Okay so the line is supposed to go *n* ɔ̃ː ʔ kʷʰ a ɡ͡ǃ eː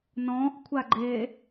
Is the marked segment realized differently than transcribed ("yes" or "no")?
no